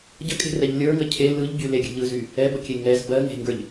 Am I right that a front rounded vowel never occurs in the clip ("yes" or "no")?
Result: no